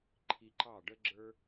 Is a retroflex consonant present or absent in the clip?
present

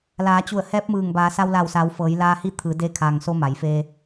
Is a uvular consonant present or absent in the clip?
absent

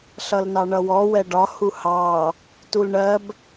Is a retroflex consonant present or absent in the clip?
present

